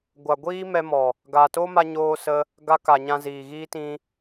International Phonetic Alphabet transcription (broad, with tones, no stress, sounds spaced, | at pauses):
ɡʷ a˨ ɡʷ iː˦ m ɛ˧ m ɔ˨ | ɡ a˨ t o˦ m a˧ ɲ oː˧ s ə˧ | ɡ a˧ k a˨ ɲ ã˧ z iː˨ ɣ iː˦ t ĩ˦